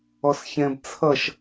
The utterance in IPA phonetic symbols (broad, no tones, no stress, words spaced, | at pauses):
ɔsçɛ̃b t͡sʰʌʃ